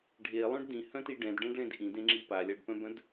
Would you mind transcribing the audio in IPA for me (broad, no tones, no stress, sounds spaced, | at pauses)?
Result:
ɖʱ e lˠ œ̃ ɖ d ĩ h œ̃ t i ɖ ɛ̃ d ɖ ɛ̃ ɖ ɭ ẽ d ʔ ĩ d ẽ ŋ͡ǁ i p a lʲ a ɖ p œ̃ b œ̃ d